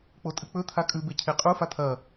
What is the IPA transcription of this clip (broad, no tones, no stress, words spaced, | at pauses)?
k͡potʼɨk͡pɵ t̪ʰakʼʉbe cʰeqʼu fat̪ʰɐ